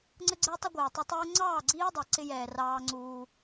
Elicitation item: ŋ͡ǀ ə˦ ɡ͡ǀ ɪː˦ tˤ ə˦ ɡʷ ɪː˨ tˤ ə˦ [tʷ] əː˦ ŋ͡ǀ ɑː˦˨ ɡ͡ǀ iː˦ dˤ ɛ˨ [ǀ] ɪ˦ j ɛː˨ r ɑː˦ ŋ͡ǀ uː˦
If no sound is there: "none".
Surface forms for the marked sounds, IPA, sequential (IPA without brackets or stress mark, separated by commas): tˤ, ǀ